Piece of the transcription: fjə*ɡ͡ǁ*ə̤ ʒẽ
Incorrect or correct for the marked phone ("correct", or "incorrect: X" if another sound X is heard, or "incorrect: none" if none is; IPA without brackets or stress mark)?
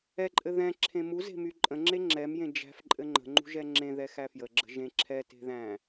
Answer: correct